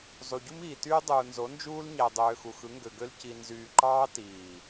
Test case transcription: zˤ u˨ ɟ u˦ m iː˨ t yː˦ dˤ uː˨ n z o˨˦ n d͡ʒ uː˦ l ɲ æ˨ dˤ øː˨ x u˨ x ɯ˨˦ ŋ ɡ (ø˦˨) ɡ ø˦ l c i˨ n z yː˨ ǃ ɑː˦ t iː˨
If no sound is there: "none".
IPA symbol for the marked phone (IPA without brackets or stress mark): ø˨